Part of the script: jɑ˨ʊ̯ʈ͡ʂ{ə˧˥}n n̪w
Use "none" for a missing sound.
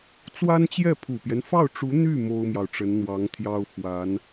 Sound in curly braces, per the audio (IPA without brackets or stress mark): ə˧˥